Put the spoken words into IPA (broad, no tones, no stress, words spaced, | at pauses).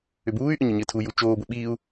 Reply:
ʏbuːy̯ʔʏ ɲɘɲɘːtʰuju t͡ʃoːbʊ ɓiːu̯